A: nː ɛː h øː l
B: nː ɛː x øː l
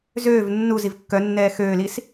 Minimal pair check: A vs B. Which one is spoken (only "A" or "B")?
B